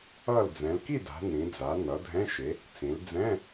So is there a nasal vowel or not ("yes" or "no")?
yes